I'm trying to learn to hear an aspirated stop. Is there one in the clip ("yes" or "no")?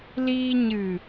no